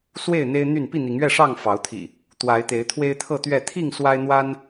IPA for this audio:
swe˥˨ɪ̯n̪e˦ɪ̯n̪y˥˨n pi˥˨n̪i˨˦ŋɥɛ˥˨ʂɑ˥˨ŋ fɑ˨˦ʊ̯t̪ʰḭ˨˩ | t̪wa˨˦ɪ̯ t̪e˨˦ɪ̯t̪ʰwe˦ɪ̯t̪ʰɤ˥˨t̪ɥɛ˥˨ t̪ʰi˥˨ŋ swa˦ɪ̯n̪wa˦n

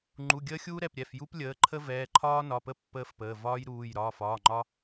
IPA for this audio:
ŋ͡ǃu˩˧˩ɡʲəː˦xʲuː˦ ɾɛ˩˧˩pɾʲɛ˩˧˩fju˦p lʲəː˩˧˩ǃʰə˦ vɛː˩˧˩ ǃʰɒː˦nɒ˩˧˩pə˦ pːəː˦fpəː˩˧˩ vɒː˦jɾuː˩˧˩j ɾɒː˩˧˩fɒː˩˧˩ŋ͡ǃɒ˦

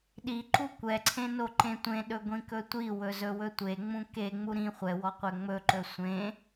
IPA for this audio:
ɗi ǃukʷɛǀʰẽ noǃẽtʷẽɗɵ ɡʷĩkɵtʷiwɵ zɵwɵtʷeŋ͡mũ keŋ͡mu ɾĩ χʷɛwɔ qʷɛŋ͡mɵǃɵ sʷẽ

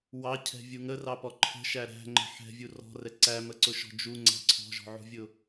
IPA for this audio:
wɑcʰɛ̤vʲu ŋərɑpɔ ǃʰə̤ʃæ ɾæ̤ŋ͡ǃə̤ ħɛ̤vʲu rɔ̤rɛ ǀæməǀʊʃɔ̤ d͡ʒu ŋ͡ǀæ̤ ǀʰɔ̤ʒɔ̤ʕṳvʲʊ

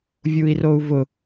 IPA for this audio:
vʲui̯rou̯vʊ

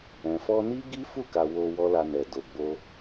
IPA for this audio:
ɛ̃˨fɔ˧ni˦ ɡi˦fu˦˨ka˨ wo˧ wɔ˦la˧nɛ˨do˨ ɡ͡bo˧

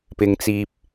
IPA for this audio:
pɪ˧ŋt͡siː˧p̚

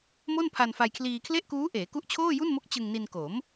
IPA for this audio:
mo˥˩npʰa˧nfa˧jkʰliː˧ kʰle˥˩ʔkuː˦˥ʔeː˩˦ku˦˥ʔ t͡ɕʰoː˥˩ju˥˩nmo˦˥k̚ t͡ɕɯ˧ŋni˧nko˩˦m

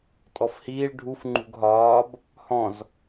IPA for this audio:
tʼɔfhiːɭ ɖʱuf ŋ͡ǃṳɡɦɒːb | hɔ̃z

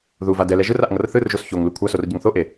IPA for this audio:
ðuva dɛlɛ ʒɯraʔ ŋʌrθɯrʒos çoŋlu kʷʰasor ɟʌŋθoʔe

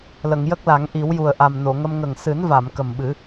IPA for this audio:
lə˨˩˨ŋjə˦˥k̚la˨˩˦ŋ ʔi˨˩˦wju˨˩ə̯ ʔa˨˩mno˨˩˨ŋə˧m ŋə˨˩ŋsɨ˨˩˦nva˨˩˨m kə˨˩mɓɨ˨˩˦

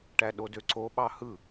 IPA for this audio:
ʈæɗodø ǀoɓɑ hɯ

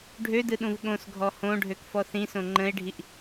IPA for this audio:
ɖʱødɯɗũv ɠõsɡʱɔ hõɖʱøkfɔ θĩsõ ŋ͡ǃə̃e̯ɖʱiʔ

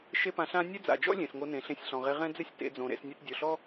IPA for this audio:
ʃe˦pã˧ɬã˦ nʲɛ˦d͡za̰˨d͡ʒɔ̰˦ lʲẽ˨sŋo˧nẽ˨ ɬẽ˧sʲɬɔ̃˨ʁe˧ ʁɛ̃˦d͡zɪ˦sʲ tḛ˨˦d͡zõ˨ ɾḛ˧s nʲa˧tdʲo˨ɬɔ˦

